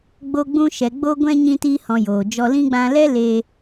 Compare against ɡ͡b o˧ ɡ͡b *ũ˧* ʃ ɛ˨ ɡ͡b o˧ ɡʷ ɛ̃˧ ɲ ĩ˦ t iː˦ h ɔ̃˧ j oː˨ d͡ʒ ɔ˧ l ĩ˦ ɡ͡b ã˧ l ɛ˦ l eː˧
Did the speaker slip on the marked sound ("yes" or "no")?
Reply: no